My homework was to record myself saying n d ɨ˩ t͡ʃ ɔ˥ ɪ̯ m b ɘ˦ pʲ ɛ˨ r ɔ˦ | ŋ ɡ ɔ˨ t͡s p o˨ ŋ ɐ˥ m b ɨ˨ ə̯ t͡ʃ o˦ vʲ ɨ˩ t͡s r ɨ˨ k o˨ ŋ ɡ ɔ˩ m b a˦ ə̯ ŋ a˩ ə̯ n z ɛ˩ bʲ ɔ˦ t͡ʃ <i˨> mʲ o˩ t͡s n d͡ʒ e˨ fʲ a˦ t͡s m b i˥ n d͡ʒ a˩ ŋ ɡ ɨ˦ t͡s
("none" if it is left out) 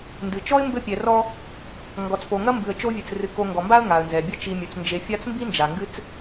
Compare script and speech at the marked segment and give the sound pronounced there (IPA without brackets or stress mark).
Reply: i˨